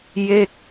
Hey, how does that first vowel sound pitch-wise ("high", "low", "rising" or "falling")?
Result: falling